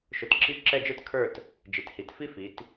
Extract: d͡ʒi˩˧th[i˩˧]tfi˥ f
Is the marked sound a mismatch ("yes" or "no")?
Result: no